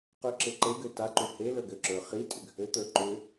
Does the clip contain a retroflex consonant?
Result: no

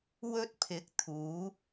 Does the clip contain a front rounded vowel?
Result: no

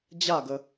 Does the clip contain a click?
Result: no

